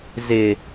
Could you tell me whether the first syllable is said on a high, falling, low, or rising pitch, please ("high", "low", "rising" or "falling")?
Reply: high